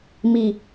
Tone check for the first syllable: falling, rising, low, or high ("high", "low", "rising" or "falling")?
low